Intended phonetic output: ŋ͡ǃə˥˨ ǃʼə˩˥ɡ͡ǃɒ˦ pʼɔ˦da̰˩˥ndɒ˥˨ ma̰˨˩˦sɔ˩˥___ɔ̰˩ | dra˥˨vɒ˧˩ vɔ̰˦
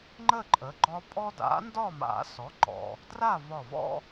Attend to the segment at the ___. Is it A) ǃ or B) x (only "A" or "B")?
A